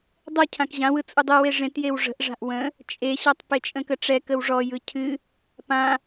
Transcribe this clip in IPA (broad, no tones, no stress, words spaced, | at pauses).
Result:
dˤə cʰãkʑãwɯ t͡sʼɯdˤɯwe ʐẽtjew ʐə̤ʔʐa̤ʔ wə̃ | t͡ʃʼeɕɔtˤ pet͡ʃʼə̃kəʈ͡ʂɛ kəwʐɔjɯ cʰɨ | pã